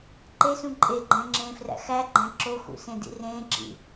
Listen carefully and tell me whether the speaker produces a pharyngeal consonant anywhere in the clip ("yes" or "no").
no